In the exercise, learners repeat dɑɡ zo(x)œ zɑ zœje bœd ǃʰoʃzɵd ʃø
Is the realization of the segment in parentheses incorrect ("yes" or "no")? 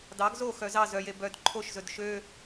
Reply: no